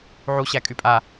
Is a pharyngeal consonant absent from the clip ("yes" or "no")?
no